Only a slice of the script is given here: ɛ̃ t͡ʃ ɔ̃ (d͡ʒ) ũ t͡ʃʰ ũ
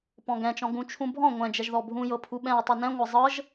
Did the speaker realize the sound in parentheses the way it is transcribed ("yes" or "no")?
no